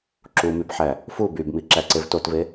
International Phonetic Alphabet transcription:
ǁumybħæ | fu bybmiǁæǀev totve

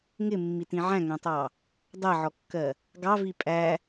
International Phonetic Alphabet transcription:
ŋɪmːitĩ ʕæ̃ŋæ̃tˤɑ | dˤɜʕɔkːɜ | ɡɑvi pʼæ

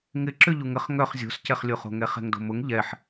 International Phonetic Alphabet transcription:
ŋɪǁʏ ʎuŋəχ ŋœχ zʲo̤scɛχlʲoχo̤ ŋɛχɛ̤ŋdo̤mʊŋ ʎɛħ

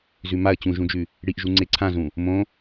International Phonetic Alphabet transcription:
zʉmaə̯ t͡ɕũʒũd͡ʒʉ | ɽiʔʒu ŋ͡ǀeǀʰãzũ | mõ

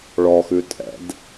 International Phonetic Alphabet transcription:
ɭɔxʉ tʼɛ̰d

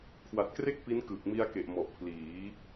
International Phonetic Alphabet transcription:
kʰwa˨˩t̚kre˥˩k̚ pi˦˥nkɯː˨˩k̚ mi˧a̯ke˨˩ʔmɔ˨˩ʔ pʰliː˩˦

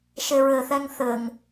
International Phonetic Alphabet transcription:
ʃeɹɘθɛŋ θɘŋ

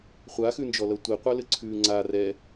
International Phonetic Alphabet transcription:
χʷaxʉnd͡ʒɔlʌ tʷiqʷʌlɘǀʰʉː ŋ͡ǀa rɛ

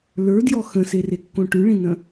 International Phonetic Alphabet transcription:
lə˞djɔ xə̃serekːõ ʈʉɭĩnə̃

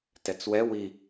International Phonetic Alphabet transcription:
tɛt͡swɛ wi

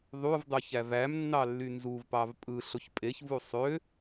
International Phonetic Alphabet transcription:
ðˤuvdˤu çævæmnːɑ lːynzuv pɑvpʼɯɬoç pʼeçvu sˤø

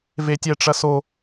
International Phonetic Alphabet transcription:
vetʲɛʈ͡ʂɐso

